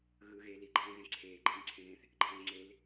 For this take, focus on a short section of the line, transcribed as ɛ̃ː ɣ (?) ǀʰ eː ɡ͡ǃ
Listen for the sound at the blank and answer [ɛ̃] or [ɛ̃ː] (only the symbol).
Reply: ɛ̃